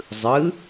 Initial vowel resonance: oral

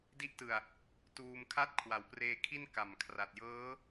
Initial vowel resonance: oral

